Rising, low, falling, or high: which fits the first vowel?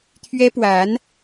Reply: high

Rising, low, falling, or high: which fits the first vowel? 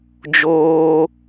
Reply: high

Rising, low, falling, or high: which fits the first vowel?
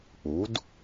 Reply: rising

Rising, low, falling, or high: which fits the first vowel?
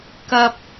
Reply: high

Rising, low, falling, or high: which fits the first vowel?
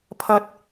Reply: low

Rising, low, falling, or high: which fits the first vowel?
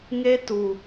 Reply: high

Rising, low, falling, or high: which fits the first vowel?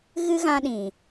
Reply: high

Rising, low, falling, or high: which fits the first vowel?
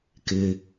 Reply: low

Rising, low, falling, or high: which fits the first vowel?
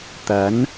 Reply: rising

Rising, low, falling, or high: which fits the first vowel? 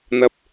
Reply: high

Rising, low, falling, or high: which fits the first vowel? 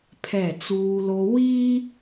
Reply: falling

